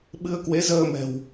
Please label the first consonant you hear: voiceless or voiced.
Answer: voiced